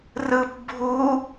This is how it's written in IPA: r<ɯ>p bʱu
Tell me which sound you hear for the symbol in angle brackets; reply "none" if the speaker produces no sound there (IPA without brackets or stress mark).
ɯ